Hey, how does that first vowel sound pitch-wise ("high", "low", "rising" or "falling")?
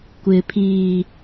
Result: low